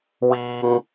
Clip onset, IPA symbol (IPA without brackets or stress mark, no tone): w